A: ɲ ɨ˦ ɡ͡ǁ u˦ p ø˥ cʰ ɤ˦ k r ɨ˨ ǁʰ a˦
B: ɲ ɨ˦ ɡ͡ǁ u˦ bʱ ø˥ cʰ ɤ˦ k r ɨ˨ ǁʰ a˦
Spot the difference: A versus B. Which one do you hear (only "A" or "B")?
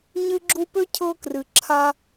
A